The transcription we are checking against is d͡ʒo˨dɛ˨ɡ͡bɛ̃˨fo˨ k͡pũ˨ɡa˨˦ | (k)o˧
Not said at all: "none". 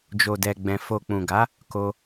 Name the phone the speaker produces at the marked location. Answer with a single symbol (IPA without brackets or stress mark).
k